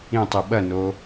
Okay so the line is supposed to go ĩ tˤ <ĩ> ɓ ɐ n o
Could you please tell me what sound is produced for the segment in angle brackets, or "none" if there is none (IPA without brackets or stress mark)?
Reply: i